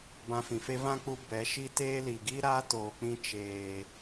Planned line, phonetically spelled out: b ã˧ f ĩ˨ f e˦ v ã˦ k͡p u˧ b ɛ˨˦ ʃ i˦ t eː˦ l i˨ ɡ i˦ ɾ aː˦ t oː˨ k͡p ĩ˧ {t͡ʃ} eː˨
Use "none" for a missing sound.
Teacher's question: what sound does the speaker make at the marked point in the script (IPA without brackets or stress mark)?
t͡ʃ